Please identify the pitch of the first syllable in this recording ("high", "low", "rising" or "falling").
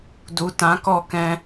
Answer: low